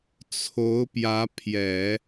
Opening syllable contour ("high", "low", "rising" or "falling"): rising